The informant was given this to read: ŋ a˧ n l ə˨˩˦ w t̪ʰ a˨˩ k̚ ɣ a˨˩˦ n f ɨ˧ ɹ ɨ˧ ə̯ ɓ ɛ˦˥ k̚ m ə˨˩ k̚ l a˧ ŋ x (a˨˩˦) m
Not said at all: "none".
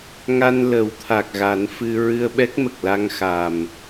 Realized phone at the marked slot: a˨˩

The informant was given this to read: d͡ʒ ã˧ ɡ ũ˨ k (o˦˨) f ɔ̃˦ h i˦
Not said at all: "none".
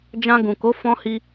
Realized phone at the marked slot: o˨˦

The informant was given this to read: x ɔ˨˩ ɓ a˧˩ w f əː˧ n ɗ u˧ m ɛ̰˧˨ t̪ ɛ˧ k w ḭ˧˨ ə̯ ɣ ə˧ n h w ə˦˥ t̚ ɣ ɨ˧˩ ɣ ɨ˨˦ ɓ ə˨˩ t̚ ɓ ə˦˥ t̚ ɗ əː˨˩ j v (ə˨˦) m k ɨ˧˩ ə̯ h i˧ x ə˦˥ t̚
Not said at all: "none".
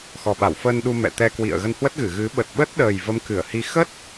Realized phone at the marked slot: ə˨˦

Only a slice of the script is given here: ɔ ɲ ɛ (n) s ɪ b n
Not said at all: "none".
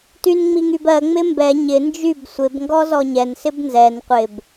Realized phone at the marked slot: n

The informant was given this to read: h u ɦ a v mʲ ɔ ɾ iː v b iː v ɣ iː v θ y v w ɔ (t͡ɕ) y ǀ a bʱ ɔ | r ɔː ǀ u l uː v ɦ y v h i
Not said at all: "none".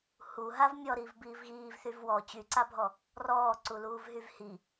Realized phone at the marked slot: t͡ɕ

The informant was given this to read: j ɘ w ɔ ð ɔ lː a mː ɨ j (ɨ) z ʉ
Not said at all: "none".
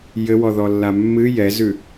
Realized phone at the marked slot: ɛ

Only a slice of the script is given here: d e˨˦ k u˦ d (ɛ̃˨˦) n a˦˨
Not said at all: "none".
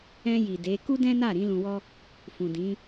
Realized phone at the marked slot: ɛ̃˦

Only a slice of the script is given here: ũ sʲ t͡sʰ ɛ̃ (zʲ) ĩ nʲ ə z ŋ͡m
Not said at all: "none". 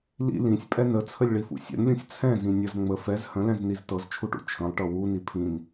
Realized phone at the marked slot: z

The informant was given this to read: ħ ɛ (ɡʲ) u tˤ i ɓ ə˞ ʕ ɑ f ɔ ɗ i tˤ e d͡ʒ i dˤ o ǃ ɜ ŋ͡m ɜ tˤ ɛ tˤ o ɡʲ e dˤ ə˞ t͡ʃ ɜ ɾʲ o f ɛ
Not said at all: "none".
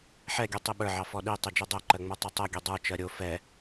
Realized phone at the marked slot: ɡʲ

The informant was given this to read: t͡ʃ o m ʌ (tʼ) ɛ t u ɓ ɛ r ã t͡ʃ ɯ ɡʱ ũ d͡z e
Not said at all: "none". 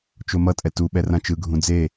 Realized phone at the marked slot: tʼ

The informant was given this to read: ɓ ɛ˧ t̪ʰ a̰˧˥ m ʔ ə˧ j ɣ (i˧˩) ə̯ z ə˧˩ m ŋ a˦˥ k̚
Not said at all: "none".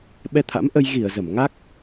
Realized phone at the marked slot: i˧˩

